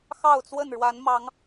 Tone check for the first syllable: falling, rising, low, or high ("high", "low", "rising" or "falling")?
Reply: falling